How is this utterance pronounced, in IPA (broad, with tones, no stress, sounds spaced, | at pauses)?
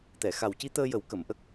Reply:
t̪ ɛ˨˩˨ x a˨˩ w c i˧˥ t̪ əː˧ j ə˨˩˦ w k ə˨˩˨ m ʔ ə˦˥ k̚